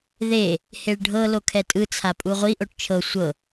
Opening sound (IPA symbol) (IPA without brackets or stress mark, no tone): ð